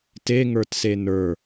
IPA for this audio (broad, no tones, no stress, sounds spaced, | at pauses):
t e ŋ ə˞ t s e n ə˞